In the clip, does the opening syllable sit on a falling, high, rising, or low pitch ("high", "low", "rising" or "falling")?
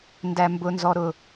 low